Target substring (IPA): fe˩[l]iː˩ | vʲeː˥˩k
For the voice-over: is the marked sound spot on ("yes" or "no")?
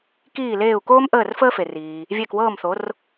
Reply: no